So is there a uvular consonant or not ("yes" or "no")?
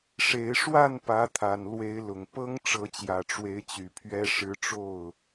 no